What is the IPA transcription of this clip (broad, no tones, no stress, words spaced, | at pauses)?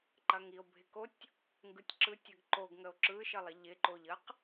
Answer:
ǃɐŋio̯bʱɪkotʲ | ŋɡɯtʲǁɯtʲəɡ ǃoɡŋəo̯ ǁɯʃəlˠɪ ʎɪǃoʎəq